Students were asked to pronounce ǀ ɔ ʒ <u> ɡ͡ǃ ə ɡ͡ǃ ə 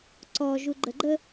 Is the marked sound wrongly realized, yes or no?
no